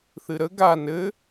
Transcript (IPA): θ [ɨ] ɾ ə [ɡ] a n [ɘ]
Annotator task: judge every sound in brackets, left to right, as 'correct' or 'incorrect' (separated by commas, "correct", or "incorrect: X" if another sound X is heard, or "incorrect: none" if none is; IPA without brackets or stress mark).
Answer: correct, correct, correct